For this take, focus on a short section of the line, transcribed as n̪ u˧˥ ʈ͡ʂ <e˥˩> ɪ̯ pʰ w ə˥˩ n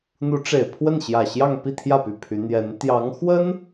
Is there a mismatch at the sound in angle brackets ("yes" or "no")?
yes